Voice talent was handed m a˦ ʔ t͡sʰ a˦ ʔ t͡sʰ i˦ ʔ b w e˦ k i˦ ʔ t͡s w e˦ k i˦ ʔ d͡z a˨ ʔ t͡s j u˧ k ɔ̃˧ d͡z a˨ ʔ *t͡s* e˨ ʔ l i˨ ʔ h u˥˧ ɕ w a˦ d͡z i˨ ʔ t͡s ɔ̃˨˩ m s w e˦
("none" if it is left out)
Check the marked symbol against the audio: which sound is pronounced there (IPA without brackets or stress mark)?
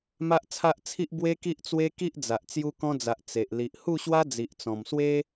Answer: t͡s